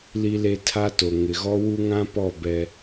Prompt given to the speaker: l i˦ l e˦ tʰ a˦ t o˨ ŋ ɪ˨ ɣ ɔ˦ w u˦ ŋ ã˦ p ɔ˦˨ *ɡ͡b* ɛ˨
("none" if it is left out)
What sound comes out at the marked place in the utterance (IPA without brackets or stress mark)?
b